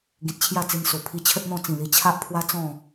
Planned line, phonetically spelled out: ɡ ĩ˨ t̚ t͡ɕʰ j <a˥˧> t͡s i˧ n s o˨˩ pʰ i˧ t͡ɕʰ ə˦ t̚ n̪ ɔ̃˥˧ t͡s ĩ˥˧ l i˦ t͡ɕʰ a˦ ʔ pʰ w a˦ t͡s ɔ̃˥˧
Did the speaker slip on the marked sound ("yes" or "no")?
no